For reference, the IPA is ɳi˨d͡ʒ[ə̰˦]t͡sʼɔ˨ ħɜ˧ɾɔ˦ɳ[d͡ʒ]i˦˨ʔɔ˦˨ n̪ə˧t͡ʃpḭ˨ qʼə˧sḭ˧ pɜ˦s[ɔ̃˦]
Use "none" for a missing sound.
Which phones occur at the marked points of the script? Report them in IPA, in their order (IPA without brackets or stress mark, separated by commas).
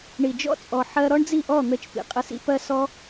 ɔ̰˦, d͡z, ɔ˦